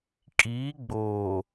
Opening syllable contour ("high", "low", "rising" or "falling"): rising